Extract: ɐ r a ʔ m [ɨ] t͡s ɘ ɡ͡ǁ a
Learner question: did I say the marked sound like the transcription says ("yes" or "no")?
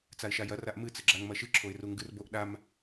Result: yes